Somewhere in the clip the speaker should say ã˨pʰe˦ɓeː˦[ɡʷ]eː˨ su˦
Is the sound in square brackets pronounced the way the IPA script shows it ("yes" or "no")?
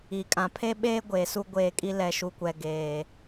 yes